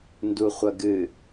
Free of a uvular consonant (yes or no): no